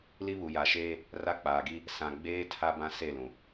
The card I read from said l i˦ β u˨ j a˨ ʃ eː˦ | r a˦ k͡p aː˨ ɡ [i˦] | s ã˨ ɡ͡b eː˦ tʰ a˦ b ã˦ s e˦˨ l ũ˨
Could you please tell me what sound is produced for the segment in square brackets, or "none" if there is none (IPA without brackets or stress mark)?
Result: i˦